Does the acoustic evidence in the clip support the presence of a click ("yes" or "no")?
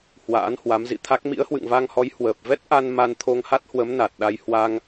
no